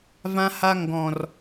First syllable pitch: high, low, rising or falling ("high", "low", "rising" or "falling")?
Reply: high